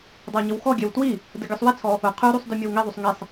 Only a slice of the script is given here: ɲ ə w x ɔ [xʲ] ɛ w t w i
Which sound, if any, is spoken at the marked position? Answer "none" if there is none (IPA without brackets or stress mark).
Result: ɡʲ